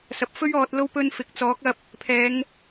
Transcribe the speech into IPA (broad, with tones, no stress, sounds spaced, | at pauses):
s ɐ˨ p̚ f ɵ˥ ɥ ɔː˧ t̚ l o˥ w p ɵ˧ n f ɪ˨ k̚ t͡s ɔː˨˥ k̚ ɐ˧ p̚ | pʰ ɛː˨˧ ŋ